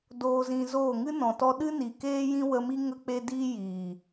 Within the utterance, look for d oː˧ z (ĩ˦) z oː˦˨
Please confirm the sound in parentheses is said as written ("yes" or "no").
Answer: no